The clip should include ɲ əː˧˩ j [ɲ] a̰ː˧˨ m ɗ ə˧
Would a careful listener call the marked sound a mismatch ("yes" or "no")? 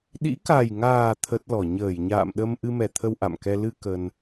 no